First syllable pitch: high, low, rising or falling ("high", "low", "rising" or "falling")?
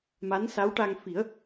rising